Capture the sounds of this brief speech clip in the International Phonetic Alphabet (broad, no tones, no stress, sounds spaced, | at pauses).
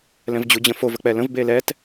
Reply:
l ɛ̃ v d͡ʑ u d͡ʑ ə̃ f o v ə k͡p ɛ l ə̃ v b e l ɛ t